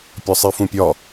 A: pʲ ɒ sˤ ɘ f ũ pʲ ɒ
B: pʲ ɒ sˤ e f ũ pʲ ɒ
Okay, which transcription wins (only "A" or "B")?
B